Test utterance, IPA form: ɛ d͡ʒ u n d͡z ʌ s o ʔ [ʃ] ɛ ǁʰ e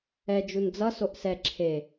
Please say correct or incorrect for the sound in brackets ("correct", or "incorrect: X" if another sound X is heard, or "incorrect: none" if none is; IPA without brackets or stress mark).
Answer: incorrect: s